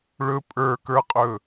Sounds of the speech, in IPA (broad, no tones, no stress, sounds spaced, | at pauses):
ɭ ɵ pʼ ə˞ k ə˞ qʼ ɵ